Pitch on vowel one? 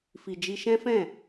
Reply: low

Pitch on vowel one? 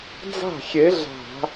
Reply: falling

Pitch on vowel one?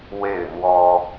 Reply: falling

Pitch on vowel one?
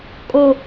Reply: low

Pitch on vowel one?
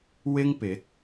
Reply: high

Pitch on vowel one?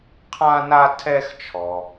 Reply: high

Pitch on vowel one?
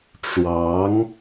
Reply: rising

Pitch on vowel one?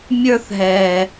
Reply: high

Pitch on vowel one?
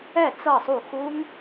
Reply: falling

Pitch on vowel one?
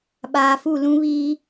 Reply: low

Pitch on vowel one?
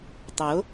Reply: rising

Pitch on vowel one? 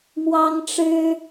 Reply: high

